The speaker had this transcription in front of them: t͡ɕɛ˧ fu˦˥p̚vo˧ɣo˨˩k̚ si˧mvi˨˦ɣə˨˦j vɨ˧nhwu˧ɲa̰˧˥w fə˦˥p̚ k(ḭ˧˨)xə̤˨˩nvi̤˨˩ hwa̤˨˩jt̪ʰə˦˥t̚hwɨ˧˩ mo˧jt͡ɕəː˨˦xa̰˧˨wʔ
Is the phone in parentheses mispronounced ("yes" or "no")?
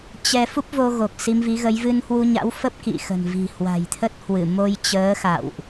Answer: no